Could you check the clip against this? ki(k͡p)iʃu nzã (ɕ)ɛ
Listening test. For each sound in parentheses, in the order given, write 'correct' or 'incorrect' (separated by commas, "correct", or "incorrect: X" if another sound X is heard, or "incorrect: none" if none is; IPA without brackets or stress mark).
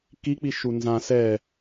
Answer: correct, incorrect: s